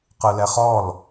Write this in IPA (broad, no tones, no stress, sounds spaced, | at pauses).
q ɯ l ɛ χ ɔ l